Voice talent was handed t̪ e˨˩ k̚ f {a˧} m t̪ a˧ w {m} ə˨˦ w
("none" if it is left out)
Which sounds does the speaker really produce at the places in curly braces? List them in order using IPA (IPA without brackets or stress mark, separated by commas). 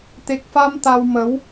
a˧, m